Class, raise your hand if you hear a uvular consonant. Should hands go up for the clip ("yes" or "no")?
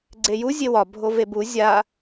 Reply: no